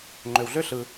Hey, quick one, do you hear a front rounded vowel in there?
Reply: yes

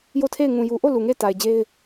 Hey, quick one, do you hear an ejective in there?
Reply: no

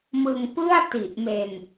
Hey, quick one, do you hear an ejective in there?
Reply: no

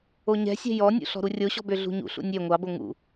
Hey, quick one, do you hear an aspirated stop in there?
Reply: no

